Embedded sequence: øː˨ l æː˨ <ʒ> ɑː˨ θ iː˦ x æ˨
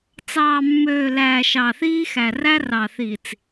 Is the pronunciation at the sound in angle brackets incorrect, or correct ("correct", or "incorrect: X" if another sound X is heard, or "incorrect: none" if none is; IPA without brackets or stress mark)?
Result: incorrect: ʃ